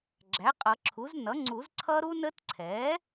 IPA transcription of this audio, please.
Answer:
ɡ͡ǁ æ˩˥ qʼ ʌ˨˩˦ ǁʰ u˩˥ z n ʌ˩˥ ŋ͡ǀ u˨˩˦ z ǀʰ ʌ˦˥ ɾ u˦˥ n ə˦˥ t ǀʰ ɛ˩˥

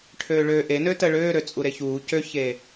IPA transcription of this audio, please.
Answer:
ʈʰ øː ɭ ø ʔ e n ø t ə ɭ øː ɾ ø t͡sʼ u ɾ e ç uː c ø ç eː

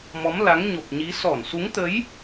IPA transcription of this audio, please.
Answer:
m ɔ˨˦ m l a˨˦ ŋ ɲ o˨˩ p̚ ɲ i˨˦ s ɔ˧˩ n s u˨˦ ŋ t̪ ə˨˦ j

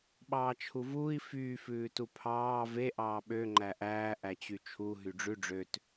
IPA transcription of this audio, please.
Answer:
ɓ ɑː t͡ʃʰ u v uː i̯ f yː f ʉː t u pʰ ɑː v e ʔ ɑː ɓ ø ŋ͡ǃ æ ʔ æː ʔ æ t͡ɕ y t͡ʃʰ u ɦ y ɖ͡ʐ ʉ ɖ͡ʐ ø t

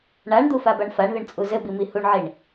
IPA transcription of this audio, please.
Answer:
ɳ a ɳ d̪ u f a b a ɳ f a ɳ ð ə ɳ t͡sʼ u z ɘ b i m i h u ɳ ʕ i ɳ

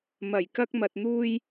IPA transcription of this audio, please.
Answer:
m ɐ˨˩ j k ɐ˧ k̚ m ɐ˨ t̚ n̪ uː˧ j

